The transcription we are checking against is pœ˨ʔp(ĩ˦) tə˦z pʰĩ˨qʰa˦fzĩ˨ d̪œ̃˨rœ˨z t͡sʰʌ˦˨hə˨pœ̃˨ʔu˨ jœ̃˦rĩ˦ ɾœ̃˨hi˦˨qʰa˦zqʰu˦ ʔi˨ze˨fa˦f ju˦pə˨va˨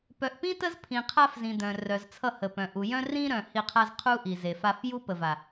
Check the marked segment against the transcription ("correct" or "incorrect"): correct